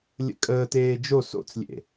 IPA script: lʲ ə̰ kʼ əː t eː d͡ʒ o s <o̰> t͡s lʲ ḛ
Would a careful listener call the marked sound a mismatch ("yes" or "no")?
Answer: no